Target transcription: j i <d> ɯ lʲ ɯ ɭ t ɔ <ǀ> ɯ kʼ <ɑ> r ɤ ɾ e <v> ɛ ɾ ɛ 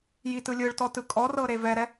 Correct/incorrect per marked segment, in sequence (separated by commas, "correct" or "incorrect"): incorrect, incorrect, incorrect, correct